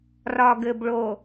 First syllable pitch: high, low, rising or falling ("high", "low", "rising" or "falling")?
low